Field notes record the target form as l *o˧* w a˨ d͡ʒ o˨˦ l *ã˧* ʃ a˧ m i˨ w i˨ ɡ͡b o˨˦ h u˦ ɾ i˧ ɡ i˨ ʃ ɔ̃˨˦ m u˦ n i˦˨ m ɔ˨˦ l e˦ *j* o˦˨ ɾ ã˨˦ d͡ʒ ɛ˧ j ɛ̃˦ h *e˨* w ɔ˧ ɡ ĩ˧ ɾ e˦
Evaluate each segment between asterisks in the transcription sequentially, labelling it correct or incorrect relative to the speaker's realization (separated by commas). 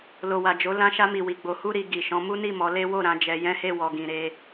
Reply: incorrect, correct, incorrect, incorrect